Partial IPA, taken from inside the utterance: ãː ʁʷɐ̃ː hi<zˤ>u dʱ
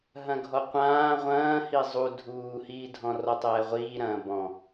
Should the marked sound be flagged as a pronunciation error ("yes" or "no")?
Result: no